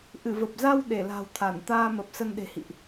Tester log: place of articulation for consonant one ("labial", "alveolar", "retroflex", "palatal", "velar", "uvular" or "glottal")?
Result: glottal